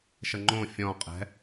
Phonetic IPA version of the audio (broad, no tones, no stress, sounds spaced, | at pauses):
ʃ ə ŋ͡ǃ õ fʲ ɔ̃ qʼ ɛ̤